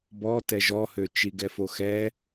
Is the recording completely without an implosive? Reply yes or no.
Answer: yes